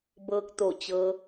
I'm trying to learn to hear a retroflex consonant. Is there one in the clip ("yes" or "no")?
no